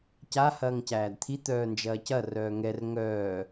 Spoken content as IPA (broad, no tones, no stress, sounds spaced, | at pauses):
c a h ɐː ŋ c æː d t̪ʰ i t̪ œː n d͡ʒ ɐː c ɐ r œː ŋ ɛ r ŋ œː